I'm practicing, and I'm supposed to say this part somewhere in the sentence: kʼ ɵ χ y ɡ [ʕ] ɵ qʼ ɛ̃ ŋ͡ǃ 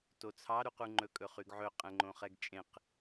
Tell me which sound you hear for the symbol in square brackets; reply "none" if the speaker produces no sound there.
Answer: ʕ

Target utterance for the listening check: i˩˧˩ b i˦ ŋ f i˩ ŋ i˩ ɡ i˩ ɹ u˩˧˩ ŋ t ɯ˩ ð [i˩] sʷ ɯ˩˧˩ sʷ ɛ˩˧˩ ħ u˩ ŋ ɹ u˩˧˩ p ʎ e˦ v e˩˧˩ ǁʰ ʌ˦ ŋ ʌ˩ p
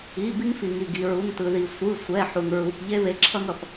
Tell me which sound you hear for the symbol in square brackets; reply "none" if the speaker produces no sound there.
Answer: i˩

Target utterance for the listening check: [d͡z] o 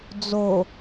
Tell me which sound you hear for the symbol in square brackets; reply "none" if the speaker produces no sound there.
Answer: d͡z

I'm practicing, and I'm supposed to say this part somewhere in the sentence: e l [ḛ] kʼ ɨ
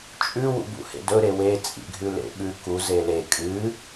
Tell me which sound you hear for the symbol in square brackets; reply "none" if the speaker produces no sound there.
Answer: e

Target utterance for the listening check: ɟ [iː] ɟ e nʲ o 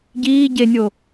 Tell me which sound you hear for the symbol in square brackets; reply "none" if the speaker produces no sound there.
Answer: iː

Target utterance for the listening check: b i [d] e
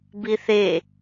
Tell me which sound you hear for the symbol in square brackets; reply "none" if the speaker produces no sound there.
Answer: θ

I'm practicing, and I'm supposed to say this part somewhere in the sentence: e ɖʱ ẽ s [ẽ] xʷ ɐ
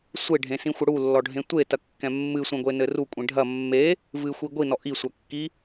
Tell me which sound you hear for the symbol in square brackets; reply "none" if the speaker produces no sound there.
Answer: ĩ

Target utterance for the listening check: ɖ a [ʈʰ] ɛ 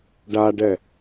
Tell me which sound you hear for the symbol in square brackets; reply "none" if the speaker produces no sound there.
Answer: ɖ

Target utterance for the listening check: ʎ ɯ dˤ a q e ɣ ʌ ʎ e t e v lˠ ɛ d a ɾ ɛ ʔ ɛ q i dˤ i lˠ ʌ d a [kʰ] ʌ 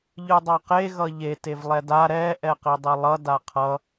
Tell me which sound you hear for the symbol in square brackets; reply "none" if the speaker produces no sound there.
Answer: qʰ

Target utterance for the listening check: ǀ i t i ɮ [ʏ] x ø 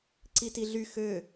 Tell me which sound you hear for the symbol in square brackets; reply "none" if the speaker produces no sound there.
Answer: y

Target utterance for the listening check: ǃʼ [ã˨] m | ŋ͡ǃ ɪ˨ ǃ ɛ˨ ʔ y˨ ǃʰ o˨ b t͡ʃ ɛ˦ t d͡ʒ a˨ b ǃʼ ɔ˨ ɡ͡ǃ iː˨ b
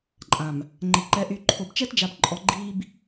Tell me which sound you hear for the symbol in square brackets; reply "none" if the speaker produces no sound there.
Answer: ã˨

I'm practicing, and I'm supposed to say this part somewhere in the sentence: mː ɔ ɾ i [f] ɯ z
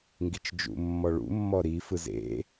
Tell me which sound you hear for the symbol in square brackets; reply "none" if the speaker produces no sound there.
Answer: f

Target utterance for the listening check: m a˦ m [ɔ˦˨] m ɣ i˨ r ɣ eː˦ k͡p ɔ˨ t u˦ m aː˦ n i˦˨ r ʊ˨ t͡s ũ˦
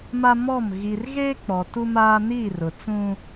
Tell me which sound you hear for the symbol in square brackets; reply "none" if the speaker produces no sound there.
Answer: ɔ˦˨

